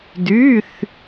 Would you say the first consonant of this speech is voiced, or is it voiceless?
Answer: voiced